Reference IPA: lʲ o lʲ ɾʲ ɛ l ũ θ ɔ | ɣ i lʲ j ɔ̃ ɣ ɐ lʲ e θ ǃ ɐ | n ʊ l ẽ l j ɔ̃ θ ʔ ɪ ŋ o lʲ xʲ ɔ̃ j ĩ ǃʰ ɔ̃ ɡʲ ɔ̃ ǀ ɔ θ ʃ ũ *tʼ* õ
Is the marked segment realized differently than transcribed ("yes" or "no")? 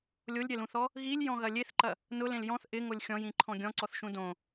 yes